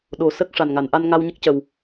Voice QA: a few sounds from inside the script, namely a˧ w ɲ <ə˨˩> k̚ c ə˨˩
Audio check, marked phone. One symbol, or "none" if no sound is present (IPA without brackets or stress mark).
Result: ə˦˥